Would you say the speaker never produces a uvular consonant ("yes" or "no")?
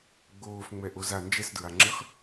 no